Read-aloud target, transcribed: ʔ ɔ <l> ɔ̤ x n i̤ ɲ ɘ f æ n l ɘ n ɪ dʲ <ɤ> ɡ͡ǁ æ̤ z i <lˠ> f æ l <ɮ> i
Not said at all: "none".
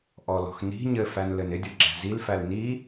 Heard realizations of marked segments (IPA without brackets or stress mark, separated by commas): l, ɤ, l, n